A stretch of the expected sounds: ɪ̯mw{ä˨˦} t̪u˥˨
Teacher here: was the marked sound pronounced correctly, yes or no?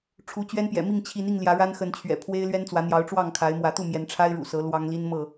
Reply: yes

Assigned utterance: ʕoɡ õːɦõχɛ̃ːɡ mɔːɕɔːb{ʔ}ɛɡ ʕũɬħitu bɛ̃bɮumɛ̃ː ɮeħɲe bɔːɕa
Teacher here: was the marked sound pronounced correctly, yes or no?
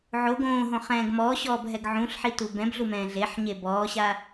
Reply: no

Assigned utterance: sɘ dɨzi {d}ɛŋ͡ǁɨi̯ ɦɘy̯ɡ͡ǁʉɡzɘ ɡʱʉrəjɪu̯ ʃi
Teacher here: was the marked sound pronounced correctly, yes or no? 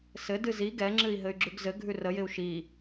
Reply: no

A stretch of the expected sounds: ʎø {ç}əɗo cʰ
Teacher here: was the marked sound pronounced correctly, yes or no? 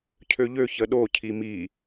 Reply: yes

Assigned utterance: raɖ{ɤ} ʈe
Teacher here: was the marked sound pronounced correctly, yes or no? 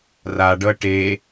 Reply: yes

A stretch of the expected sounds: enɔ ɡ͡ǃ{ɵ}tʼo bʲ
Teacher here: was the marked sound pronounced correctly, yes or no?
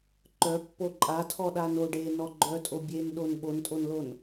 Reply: no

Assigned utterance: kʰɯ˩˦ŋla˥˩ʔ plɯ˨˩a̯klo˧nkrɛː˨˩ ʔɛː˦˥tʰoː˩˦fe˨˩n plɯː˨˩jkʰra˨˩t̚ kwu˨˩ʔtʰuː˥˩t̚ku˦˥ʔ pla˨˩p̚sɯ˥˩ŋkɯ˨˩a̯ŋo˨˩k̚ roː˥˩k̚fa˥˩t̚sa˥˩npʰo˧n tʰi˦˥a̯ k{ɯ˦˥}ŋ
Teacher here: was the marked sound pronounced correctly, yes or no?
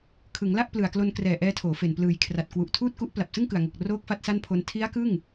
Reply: no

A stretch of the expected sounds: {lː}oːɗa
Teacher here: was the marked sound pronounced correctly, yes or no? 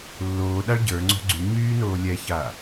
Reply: yes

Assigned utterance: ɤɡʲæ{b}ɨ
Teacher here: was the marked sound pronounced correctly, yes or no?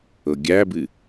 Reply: yes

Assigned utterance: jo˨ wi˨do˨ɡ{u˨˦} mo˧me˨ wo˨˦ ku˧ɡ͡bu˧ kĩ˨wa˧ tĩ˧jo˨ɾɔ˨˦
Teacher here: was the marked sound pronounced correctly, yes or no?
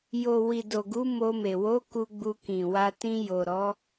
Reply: yes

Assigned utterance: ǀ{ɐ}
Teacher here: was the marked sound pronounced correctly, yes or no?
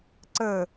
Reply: no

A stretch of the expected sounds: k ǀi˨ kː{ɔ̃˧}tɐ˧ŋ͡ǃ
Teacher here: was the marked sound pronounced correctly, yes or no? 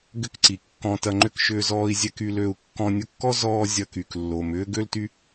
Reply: yes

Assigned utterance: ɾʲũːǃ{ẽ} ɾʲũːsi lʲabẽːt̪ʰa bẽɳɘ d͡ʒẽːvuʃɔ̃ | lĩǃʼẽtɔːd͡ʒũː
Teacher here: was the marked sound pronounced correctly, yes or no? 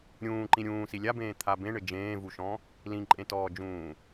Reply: no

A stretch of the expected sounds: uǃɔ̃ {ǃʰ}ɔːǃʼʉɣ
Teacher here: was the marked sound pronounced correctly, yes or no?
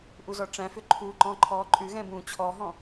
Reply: yes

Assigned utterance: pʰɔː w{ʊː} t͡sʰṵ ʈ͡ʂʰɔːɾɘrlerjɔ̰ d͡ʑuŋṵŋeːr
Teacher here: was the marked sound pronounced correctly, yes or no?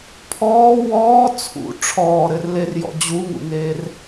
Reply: no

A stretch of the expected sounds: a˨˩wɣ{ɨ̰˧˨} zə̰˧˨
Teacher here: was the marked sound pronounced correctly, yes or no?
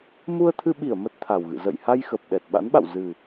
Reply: yes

